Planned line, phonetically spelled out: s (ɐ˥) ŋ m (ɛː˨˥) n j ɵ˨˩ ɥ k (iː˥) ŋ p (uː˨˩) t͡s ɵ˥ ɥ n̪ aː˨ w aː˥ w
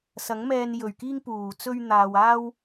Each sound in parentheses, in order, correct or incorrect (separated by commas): incorrect, incorrect, correct, correct